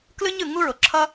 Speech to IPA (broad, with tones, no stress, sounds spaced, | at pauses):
k l ɯ˥ ɲ ɯ˩ ŋ u˥ ɹ o˩ ǁʰ ʌ˥